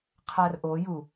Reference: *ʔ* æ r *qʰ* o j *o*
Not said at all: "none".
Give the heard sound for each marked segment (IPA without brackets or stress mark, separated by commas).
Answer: qʰ, ʔ, u